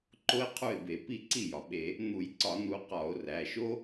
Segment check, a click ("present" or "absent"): present